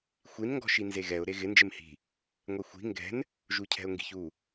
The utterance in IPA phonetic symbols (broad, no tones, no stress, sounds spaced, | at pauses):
xʷ i n ŋ ɡ ɔ̤ ʃ i n z e ɣ ɛ ʊ̯ ɾ e ɣ ɪ n d͡ʒ ɪ m h i̤ | ŋʷ ɛ xʷ i̤ ŋ ɡ ɛ̤ n | ʒ u cʰ ɛ̤ ʊ̯ ŋ ɡ i̤ ç u